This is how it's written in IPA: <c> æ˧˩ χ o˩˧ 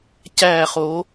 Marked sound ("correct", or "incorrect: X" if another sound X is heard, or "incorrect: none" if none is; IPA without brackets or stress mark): correct